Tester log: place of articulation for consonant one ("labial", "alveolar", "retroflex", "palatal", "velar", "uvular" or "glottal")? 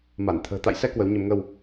labial